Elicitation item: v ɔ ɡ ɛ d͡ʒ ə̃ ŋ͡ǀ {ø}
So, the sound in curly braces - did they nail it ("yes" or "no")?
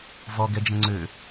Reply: yes